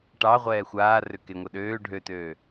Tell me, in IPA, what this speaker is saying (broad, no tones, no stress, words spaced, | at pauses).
ʈɑ ʁʷɛːxʷaːrʏ keŋʷɛɗøː ɖʱøtøː